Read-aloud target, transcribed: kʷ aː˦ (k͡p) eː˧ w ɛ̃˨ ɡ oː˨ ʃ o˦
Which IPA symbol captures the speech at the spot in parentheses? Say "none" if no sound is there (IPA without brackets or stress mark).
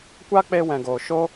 k͡p